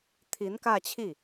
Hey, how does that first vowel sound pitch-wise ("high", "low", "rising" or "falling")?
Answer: rising